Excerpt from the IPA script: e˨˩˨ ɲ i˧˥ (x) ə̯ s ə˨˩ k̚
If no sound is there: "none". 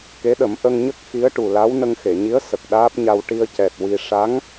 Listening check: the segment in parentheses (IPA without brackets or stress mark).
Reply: none